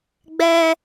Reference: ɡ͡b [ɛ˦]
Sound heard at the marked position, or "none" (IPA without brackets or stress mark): ɛ˦